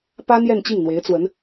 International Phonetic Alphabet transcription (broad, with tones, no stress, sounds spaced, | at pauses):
p ä˥ n̪ j ɛ˥˧ n t͡ɕ i˥˩ ŋ n̪ w e˧˥ ɪ̯ t͡s w ə˧˥ n